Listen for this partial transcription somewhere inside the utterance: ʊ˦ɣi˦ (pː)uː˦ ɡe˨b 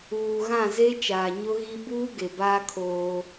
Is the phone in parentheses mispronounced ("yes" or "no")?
yes